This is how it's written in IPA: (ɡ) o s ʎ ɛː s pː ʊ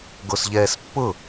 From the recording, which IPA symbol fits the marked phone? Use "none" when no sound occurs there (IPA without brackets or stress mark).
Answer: ɡ